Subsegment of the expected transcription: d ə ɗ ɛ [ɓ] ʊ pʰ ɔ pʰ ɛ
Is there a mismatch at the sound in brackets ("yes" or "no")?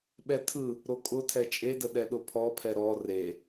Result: yes